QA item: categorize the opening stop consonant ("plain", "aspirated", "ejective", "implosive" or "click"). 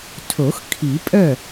aspirated